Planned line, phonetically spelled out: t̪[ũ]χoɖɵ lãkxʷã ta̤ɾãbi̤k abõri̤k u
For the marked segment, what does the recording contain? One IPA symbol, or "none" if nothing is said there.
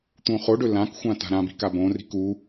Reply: ũ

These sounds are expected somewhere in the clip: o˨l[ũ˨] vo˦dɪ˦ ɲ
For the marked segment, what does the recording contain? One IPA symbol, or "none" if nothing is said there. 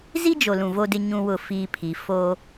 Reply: ũ˨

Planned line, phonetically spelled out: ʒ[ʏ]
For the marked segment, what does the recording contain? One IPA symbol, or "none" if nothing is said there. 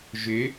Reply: ʏ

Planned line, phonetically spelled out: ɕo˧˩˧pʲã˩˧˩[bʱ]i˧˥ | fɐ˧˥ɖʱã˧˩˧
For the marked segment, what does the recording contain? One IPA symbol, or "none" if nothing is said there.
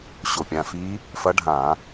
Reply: f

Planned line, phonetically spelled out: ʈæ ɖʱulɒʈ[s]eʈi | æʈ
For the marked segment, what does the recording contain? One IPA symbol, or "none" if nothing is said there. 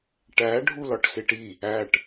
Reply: s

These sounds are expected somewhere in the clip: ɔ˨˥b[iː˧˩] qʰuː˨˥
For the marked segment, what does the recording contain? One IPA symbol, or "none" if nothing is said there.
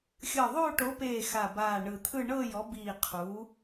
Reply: iː˧˩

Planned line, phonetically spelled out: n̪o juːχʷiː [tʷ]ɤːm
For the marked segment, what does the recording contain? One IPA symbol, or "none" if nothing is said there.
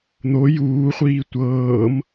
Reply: tʷ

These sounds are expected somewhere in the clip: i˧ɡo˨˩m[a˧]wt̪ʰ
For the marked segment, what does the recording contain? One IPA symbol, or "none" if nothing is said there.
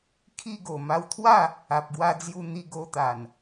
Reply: a˧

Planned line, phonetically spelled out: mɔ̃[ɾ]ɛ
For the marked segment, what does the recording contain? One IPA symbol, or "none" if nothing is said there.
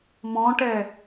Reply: ʈ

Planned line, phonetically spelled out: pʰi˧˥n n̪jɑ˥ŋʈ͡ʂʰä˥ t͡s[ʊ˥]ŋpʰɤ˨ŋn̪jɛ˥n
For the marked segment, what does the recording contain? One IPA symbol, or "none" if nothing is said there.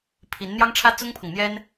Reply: ʊ˥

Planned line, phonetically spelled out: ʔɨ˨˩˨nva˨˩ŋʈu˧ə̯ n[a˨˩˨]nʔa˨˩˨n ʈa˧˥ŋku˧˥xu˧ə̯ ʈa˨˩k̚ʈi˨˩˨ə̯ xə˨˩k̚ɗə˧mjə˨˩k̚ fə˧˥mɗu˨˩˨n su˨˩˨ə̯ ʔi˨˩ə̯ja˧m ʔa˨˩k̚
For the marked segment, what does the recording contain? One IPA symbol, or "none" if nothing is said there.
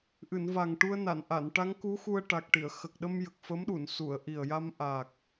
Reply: a˨˩˨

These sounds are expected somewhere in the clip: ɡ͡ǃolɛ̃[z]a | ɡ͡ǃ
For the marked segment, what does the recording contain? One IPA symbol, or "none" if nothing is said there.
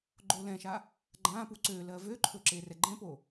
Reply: ʃ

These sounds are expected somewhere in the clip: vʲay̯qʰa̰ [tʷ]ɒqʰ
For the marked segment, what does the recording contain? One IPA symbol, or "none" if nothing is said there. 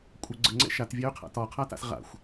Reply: t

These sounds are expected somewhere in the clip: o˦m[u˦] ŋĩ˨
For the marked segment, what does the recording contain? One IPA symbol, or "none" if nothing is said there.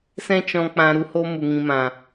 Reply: u˨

